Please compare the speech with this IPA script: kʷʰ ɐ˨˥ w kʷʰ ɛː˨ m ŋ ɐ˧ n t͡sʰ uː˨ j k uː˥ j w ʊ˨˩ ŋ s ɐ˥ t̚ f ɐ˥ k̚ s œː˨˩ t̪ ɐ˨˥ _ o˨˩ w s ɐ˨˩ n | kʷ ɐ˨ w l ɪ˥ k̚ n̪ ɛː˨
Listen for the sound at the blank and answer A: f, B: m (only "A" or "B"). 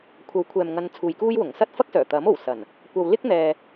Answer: B